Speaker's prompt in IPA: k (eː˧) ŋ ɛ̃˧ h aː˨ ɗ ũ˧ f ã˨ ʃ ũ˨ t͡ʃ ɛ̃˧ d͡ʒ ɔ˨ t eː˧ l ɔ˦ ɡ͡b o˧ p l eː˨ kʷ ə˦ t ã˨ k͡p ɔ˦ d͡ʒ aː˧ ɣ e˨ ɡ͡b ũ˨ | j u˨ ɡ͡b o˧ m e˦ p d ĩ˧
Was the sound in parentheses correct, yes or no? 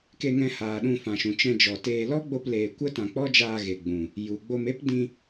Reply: no